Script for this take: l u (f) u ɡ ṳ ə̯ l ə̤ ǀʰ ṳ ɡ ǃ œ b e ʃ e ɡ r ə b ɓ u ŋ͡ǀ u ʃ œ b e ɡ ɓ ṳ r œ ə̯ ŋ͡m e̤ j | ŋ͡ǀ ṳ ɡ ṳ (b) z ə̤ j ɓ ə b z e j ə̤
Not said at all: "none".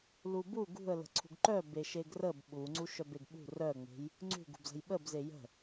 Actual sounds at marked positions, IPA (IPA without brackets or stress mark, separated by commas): b, b